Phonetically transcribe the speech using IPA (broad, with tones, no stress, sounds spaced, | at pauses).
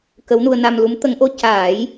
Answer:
k ə˧˥ w n u˧ ə̯ n a˧ m l u˧˥ m t̪ ə˧˥ ŋ ʔ o˧˥ c aː˨˩˦ j